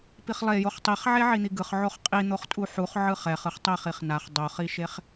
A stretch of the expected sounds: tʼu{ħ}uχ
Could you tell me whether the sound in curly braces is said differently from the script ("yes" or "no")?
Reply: no